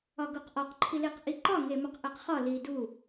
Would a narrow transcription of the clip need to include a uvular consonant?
yes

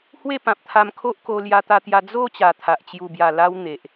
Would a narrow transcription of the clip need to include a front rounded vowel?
no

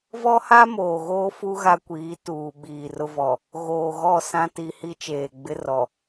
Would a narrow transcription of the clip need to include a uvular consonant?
no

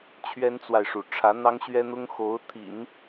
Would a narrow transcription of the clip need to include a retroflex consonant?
yes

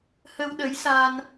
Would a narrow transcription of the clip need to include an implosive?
yes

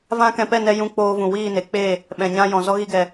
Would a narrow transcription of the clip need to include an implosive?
yes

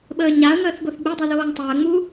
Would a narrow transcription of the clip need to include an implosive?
yes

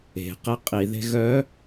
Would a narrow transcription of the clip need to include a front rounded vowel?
yes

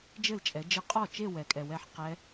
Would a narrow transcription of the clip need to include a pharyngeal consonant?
yes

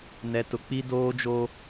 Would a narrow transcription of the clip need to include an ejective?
no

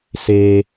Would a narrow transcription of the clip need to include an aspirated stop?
no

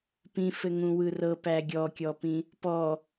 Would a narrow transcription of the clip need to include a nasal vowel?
yes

